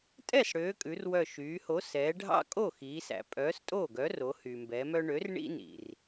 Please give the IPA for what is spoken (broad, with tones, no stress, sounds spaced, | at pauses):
tʼ ɛ˥˩ s ɽ ø˩˧ kʼ ʉ˩˧ r w œ˧˩ ʃ yː˩˧ h o˨˥ s ɛː˩˧ ɖʱ ɑ̰˦ kʼ o˥˩ x iː˩˧ s æ̰˩ pʼ œː˨˥ s tʼ oː˥˩ ɡ œ˨˥ r o˩˧ h y˩ m b ɛ˩˧ m œ˦ ɳ ø˨˥ r ɳ ḭ˦ n ḭ˩ r